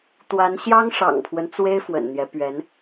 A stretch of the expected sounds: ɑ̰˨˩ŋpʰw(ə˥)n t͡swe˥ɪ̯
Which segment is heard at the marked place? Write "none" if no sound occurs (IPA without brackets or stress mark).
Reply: ə˦